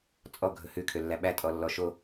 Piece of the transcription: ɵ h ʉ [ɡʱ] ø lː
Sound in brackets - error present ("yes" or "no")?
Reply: yes